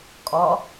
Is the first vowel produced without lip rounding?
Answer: no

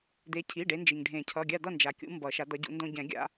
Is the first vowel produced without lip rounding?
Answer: yes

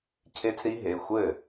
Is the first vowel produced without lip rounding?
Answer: yes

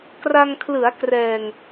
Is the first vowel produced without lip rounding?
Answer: yes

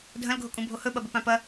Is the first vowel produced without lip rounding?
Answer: yes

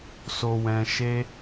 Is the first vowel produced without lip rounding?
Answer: no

